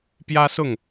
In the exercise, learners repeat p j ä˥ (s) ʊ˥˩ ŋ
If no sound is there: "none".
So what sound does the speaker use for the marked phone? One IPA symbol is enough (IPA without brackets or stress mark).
s